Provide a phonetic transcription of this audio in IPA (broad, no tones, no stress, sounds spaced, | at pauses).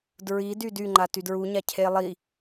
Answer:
d ɹ i d y d y ŋ͡ǃ a t y d ɹ u ɲ a cʰ e lˠ i